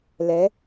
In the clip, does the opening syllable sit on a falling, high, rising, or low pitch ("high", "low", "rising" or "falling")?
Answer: rising